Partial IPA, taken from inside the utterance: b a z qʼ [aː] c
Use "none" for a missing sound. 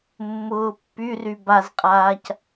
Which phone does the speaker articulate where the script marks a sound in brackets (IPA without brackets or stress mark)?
aː